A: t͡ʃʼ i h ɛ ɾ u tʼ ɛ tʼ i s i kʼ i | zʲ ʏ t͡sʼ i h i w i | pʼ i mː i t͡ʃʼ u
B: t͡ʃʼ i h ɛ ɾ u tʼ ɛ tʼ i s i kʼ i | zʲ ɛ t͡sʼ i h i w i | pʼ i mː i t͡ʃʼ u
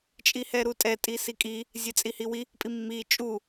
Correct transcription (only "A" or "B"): B